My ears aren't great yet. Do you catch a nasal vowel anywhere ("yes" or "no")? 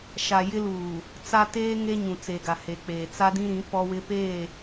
yes